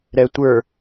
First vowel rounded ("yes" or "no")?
no